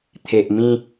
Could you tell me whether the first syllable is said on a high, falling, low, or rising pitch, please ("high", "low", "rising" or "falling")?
low